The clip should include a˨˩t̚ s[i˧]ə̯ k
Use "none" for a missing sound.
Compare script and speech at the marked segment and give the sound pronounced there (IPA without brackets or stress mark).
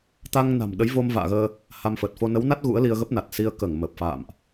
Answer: i˧